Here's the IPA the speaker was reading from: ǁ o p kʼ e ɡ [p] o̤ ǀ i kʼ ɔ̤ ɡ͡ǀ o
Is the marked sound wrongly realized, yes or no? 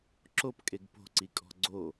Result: no